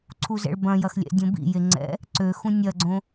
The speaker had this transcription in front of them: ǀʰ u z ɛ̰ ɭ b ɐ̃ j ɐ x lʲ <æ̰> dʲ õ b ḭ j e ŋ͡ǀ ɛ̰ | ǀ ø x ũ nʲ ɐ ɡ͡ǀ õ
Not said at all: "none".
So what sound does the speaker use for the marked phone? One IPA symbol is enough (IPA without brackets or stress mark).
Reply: ɛ̰